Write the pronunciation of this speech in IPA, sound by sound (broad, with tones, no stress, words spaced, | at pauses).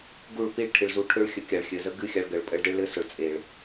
ɡu˦˨ɭpi˦˨ɭʈʰɨ˨ɭzu˧ ʈʰø˦ɭxʲə˧ kʲa˨ɭxʲɘ˨ zə˦ɡɨ˦xʲa˧ɭ ɡə˨ɭ pʼə˧ɭde˦ɭlɘ˦sʊ˨ɭ t͡sʼe˨ɭ